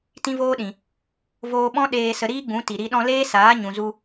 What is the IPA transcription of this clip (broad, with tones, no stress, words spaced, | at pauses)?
tĩ˦voː˦ɗĩ˨ | voː˧ɓɔ̃˦ ɗeː˧sə˧ ɾiː˦ɡ͡bũ˨˦ti˨ ɾi˧ ɗɔ̃˧leː˦saː˨˦ ɲũ˨zu˧